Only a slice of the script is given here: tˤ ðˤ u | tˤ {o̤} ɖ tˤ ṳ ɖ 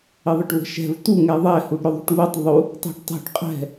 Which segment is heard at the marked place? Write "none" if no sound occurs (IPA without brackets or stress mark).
ṳ